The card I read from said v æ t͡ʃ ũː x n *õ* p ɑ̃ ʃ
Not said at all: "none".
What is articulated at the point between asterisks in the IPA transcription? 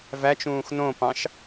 õ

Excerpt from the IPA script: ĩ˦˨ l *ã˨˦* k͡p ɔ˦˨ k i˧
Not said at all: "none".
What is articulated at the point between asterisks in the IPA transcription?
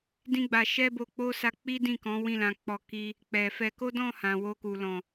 ã˨˦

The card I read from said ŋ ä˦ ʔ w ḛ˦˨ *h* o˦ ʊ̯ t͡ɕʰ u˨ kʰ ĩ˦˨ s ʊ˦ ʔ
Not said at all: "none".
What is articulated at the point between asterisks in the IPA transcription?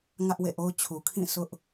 ʔ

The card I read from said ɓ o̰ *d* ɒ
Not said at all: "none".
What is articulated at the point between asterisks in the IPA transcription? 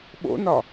n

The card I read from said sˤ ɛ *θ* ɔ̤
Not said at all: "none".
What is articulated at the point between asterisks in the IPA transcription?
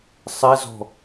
z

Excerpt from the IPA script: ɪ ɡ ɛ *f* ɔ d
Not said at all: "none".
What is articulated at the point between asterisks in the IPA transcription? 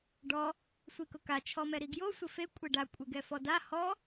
f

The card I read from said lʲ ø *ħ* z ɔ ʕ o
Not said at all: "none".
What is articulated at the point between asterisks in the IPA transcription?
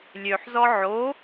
ħ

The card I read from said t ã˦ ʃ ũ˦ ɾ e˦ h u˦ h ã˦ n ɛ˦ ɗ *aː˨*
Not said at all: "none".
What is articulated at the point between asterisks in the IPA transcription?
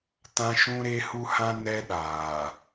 aː˨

